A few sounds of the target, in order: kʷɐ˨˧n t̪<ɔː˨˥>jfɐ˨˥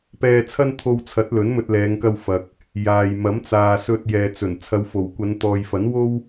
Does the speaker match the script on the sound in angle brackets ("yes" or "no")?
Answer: no